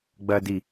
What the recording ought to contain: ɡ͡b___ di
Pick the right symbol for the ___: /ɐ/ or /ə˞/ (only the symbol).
ɐ